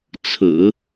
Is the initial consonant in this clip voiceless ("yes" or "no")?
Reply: yes